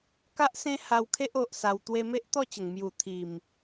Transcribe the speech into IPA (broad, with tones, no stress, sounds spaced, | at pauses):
k a˦ ʔ s ẽ˦ h a˧ w kʰ e˦ ʔ o˨ ʔ s a˧ w t̪ w e˧ m e˦ ʔ t̪ ɔ˥˧ t͡ɕ ə˨˩ ŋ m j u˨˩ t̪ʰ i˨˩ m